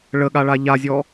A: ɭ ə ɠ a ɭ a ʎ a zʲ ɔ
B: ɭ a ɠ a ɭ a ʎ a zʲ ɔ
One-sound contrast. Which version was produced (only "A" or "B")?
A